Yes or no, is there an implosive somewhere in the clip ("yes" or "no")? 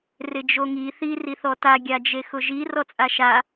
no